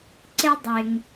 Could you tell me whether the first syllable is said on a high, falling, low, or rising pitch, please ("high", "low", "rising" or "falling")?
high